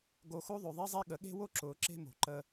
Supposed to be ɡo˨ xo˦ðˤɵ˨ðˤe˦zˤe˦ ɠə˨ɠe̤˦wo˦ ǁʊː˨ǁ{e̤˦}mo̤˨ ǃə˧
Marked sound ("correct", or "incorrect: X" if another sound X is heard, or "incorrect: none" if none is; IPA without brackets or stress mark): correct